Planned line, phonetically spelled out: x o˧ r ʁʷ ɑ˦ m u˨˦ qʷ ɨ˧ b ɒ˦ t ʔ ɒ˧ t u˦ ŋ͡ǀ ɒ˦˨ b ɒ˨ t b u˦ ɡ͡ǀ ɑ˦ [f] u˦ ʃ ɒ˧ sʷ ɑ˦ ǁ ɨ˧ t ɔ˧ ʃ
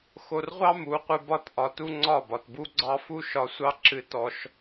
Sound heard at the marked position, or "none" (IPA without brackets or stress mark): f